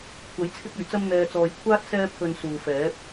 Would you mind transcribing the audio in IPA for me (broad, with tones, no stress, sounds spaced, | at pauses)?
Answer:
kʷʰ ɐ˨˥ j t͡sʰ ɪ˥ k̚ ɵ˨˩ ɥ t͡s ɐ˥ m n̪ ɛː˨ t͡s ɔː˨ j kʷʰ aː˥ t̚ s ɛː˥ pʰ ɵ˧ n s uː˨ f ɛː˨˥ p̚